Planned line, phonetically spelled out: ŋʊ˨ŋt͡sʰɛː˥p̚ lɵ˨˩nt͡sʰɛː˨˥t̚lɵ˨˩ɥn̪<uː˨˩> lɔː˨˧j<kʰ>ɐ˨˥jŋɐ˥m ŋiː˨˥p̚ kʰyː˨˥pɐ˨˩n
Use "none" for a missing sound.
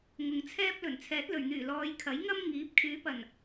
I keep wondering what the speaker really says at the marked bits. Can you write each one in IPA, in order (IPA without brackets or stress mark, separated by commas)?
yː˨˩, kʰ